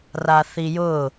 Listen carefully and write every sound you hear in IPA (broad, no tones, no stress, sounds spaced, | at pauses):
r a θ i j ʊ